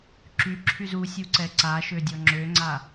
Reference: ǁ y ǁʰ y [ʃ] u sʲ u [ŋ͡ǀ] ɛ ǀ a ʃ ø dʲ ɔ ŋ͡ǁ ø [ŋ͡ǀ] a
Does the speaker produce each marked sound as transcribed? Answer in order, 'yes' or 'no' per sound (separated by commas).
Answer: no, no, yes